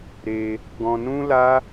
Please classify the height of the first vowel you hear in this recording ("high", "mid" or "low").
mid